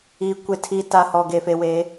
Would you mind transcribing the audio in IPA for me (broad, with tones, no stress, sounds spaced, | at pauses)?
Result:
iː˨ kʷ e˨ tʰ iː˨ t a˨ h ɔ˨ ɡ eː˨ f e˨ w eː˨˦